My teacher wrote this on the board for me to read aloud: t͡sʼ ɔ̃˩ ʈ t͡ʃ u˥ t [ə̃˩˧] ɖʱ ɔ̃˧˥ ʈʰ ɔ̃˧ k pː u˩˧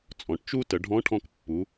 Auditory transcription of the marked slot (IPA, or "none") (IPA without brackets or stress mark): ə˩˧